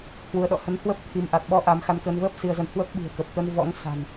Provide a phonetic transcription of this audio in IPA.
hwu˨˦ə̯ɗɔ̰˧˨ hə˨˦nhwə˦˥p̚ t̪ʰi˧m ʔa˨˩t̚ ɓɔ˨˦ ʔa˨˦mxa˧nkəː˧n vəː˦˥p̚ si˧ə̯zə˧n hwə˦˥p̚ɓi̤˨˩ə̯kə˨˩p̚t̪ə˧n vɔ̰˧˥ŋsa̤˨˩n

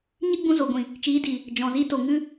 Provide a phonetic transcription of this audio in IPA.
ɲɨ˦ɡ͡bũ˧ zo˨ɡʷĩ˨ | t͡ʃiː˨˦di˨ | d͡ʒɔ̃˨zi˧ to˨ŋɨ˧

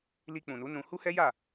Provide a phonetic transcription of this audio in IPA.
li˧k͡pũ˨nu˨˦ nũ˧ hu˦hɛ˦ja˦˨

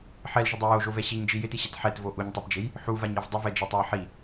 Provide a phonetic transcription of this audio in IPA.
ħɛlʒɪdˤe joʒovɛ ɕiɲd͡ʒi jɪtiɕɛt ħɛtvo ʔuɲtˤɛpd͡ʒej | ħuvaɲɛv dˤɪvɛd͡ʒɛtˤuj ħi

